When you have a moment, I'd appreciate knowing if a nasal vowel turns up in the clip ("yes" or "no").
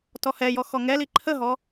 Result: no